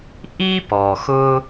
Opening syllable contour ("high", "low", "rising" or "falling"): high